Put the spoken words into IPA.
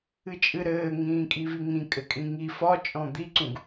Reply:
ɨ t͡ʃʼ ɨ ɾ ɘː ŋ ĩː kʼ i v i ŋ ĩ kʼ ɘ kʼ ĩ ŋ i f ɒ t͡ʃʼ ɔ̃ d̪ i ǀ ũ ɡ

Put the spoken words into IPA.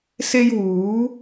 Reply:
s e˥ j w uː˨˥

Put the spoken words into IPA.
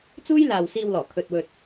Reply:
t͡s uː˥ j l aː˨ w s iː˧ w l ɔː˨˩ kʰ ɵ˧ t̚ w ɵ˧ t̚

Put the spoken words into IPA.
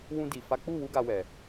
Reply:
w ũ˧ d i˨ f a˨˦ k͡p u˦˨ w u˧ ɡ a˧ w ɛ˨

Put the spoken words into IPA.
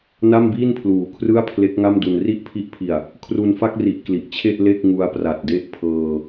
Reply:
n a˥˩ m b iː˥˩ n pʰ l uː˩˦ kʰ r ɯ˥˩ a̯ pʰ l e˦˥ k̚ ŋ a˥˩ m d u˧ n r i˥˩ ʔ pʰ i˦˥ ʔ pʰ i˨˩ a̯ | kʰ r u˧ n f a˥˩ k̚ r i˨˩ ʔ k l i˨˩ ʔ t͡ɕʰ e˥˩ ʔ l e˥˩ k̚ ŋ u˧ a̯ p r a˨˩ t̚ d e˦˥ ʔ pʰ ɤː˧

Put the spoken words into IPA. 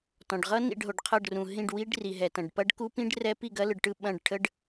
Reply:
t ɔ̃˩ ɖ ʁ ʌ˦˥ n ḭ˥˩ ɖ ɦ o˩ ɖ qʰ ʌ˥˩ ɖ r ũ˩ ɦ ĩ˥˩ ɖ w i˦˥ ɖ r i˩ ɦ ɛ˩ t ɐ̃˩ ɖ p ɐ˦˥ ɖ k u˦˥ p ĩ˦˥ ɖ r ɛ˦˥ p i˥˩ ɡ ɐ˦˥ l ɯ˩ ɖ ʈ ɯ˥˩ ɓ ɐ̃˥˩ ɖ ʈʰ ə˦˥ ɖ

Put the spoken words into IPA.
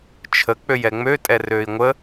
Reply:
t͡ʃʰ ə k͡p ø j ɛ ŋ͡m ø tʼ ɛ r øː i̯ ŋʷ ə

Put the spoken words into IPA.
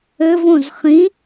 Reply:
ɘ v õ z χ ĩ

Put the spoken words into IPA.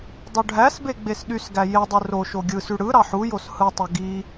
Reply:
dˤ u ɖʱ æ s b e ɡ͡b e s ɗ y s ɡ æ j e dˤ ɯ r o ʃ o ɡʲ ɯ s y ɽ ɯ ɾ ɑ ħ u j o s h ɯ tˤ ø ɡ i

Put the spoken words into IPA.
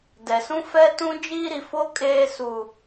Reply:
d ɛ˨ s ũ˦ f ɛ˦ t ũ˦ d͡ʒ iː˦ ɾ i˨ f o˦ kʼ eː˦ s u˦

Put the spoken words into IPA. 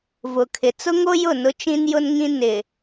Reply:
v ʊ˨ kʰ ɪ˨ t͡s ʊ˦ ŋ o˦ j ʊ˦˨ n ʊ˦ t͡ʃ ĩ˦ n j ʊ˦ n ŋ ĩ˦ n ɪ˨

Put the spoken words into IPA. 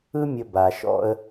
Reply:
ɯ˦ mʲ ə˧ b a˨ ʃ ɔ̰˦ ə̯

